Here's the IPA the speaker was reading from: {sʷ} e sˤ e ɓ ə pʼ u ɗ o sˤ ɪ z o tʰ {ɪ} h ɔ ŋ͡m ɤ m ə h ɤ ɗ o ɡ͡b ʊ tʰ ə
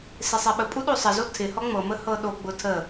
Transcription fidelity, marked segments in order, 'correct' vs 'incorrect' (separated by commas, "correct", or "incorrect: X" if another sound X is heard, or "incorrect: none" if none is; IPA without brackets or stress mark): incorrect: s, correct